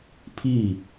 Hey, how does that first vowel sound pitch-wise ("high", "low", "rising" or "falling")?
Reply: falling